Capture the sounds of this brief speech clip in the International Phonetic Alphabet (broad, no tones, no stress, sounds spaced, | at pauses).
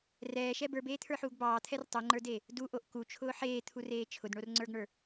r ɛː ʃ ɛ b ə˞ b eː t̪ʰ ə˞ ħ uː ɡ b ɑː t̪ʰ ɛ r tˤ u ŋ͡ǃ ə˞ d eː | d u ʔ o ʔ k u t͡ʃʰ ʊː ħ eː t̪ʰ u r eː t͡ʃʰ ʊ d ɳ o r ŋ͡ǀ ə˞ ɡ ɳ ə˞